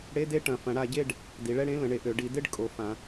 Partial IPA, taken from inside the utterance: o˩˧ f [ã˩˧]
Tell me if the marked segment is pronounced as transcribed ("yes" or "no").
yes